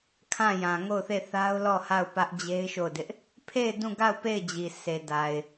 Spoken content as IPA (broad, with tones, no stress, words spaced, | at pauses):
kʰã˦˨jã˨ ŋo˦˨ʊ̯θe˦˨ θa˦ʊ̯lɔ˦˨ ha˦˨ʊ̯pä˦ʔd͡ʑe˦ɪ̯ ʃo˦˨ʊ̯dɪ˦ʔ | pʰe˦˨ɪ̯ dũ˦˨ɡa˦˨ʊ̯ pe˦˨ɪ̯d͡ʑi˨ sʰe˨ da˨ɪ̯